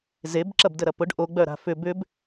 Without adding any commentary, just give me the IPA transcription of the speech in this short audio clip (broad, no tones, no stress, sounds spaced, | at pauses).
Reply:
z e b ǁ ɐ b d ə ɾ ɐ p ʊ ɖ ʔ o ɡ͡b œ ɾ a̤ f ʏ b ʏ b